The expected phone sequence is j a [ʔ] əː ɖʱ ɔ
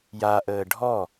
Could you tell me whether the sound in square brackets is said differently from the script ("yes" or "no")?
no